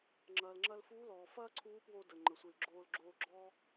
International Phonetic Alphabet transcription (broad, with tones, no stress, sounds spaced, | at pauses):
ŋ͡ǁ ɐː˩ l ŋ͡ǁ ɐ˧ l f uː˧˥ l ɔː˩ f ɐː˥ ǀʰ uː˧˥ p w o˧ d ə˩ ŋ͡ǃ ə˩ sʷ i˩ l ɡ͡ǁ oː˧ l ɡ͡ǁ oː˧ ɡ͡ǁ ɔ˥